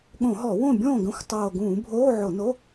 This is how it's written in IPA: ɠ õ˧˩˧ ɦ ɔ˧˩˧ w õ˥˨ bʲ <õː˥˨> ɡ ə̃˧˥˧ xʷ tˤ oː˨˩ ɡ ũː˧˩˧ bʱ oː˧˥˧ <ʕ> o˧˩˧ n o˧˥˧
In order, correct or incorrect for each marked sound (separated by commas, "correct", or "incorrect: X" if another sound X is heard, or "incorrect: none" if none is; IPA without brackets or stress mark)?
correct, correct